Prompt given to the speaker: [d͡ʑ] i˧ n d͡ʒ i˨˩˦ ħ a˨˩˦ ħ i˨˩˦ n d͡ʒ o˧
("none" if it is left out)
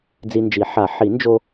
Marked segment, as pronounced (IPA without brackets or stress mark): d͡z